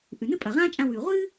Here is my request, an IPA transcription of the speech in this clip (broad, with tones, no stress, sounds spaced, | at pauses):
ʔ ʉ˩ n ɨ˥ pʼ ɐ˩ ʁ ãː˥ t͡ʃʼ ã˧ w ʉː˩ ʁʷ ɨː˥